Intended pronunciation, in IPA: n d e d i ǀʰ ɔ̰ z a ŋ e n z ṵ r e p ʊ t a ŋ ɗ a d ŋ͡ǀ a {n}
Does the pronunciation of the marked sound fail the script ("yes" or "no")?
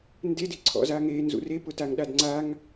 yes